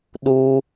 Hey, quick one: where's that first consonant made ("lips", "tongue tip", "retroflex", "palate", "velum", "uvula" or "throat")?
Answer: tongue tip